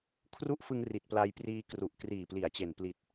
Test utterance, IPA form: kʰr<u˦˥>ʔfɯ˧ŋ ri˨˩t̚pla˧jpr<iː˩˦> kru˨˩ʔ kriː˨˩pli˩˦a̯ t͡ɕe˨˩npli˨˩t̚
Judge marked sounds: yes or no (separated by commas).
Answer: yes, no